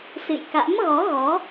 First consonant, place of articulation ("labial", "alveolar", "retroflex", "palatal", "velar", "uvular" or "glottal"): alveolar